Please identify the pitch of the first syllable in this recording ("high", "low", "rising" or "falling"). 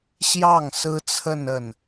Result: falling